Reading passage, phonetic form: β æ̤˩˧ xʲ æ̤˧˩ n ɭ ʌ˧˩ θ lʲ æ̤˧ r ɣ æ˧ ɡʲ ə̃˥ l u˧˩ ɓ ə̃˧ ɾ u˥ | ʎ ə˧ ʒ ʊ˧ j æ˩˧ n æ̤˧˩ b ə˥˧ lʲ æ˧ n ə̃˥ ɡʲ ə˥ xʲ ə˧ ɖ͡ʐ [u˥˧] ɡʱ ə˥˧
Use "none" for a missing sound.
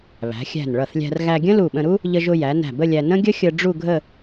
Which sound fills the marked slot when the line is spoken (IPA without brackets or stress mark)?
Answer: u˥˧